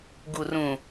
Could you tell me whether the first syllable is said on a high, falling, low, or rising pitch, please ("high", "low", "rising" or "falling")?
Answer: low